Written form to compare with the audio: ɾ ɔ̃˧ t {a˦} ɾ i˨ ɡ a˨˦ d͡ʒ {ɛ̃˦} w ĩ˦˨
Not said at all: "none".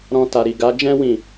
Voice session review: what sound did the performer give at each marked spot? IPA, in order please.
a˨, ɛ̃˦

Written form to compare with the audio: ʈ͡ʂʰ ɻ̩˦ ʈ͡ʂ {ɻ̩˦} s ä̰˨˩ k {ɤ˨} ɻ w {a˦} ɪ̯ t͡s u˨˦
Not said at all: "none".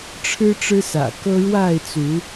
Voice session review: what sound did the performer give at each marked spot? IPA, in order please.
ɻ̩˦, ɤ˦, a˥˨

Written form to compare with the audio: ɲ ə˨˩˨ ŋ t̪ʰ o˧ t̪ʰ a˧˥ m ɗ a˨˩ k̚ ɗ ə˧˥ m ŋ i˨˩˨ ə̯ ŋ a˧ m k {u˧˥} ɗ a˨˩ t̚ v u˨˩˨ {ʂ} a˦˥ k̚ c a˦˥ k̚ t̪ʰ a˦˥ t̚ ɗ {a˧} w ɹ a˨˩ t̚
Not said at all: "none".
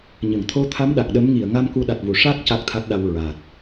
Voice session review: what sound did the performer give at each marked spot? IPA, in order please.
u˧˥, ʂ, a˧

